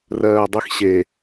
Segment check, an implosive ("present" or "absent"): absent